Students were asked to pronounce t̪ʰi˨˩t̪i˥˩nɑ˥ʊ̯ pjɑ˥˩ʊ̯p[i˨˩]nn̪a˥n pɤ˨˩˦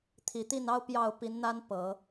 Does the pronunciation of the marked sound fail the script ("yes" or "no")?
yes